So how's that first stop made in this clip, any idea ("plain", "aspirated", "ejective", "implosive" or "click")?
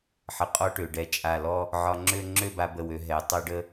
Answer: ejective